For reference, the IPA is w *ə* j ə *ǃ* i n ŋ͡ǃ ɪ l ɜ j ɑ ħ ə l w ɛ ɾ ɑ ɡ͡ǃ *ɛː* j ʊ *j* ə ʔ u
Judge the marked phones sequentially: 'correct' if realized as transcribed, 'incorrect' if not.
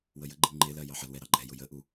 correct, incorrect: ɡ͡ǃ, incorrect: ɛ, correct

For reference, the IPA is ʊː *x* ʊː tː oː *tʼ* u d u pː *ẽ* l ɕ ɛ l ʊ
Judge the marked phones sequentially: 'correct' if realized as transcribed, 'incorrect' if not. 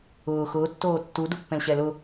correct, incorrect: tː, incorrect: ɛ̃

